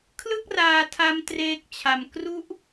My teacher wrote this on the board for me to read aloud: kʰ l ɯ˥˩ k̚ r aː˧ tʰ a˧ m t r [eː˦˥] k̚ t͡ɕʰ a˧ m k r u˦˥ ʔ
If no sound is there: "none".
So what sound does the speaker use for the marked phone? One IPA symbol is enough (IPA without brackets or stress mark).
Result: eː˦˥